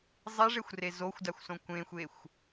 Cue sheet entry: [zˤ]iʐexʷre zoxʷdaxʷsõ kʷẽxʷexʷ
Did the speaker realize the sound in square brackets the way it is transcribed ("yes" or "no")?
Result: yes